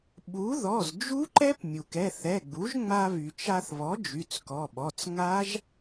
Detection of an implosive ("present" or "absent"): present